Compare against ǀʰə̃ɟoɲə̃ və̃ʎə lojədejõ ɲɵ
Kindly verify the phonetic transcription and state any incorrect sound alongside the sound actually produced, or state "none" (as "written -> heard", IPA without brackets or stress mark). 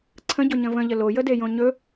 none